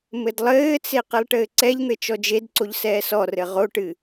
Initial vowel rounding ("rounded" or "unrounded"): unrounded